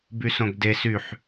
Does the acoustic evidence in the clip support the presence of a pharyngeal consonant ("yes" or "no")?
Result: yes